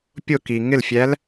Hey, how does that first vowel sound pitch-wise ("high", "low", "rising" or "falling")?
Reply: falling